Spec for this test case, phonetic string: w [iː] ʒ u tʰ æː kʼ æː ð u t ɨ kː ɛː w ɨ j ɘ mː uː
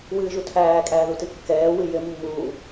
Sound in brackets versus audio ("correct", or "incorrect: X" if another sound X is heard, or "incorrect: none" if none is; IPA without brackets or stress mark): incorrect: ɨː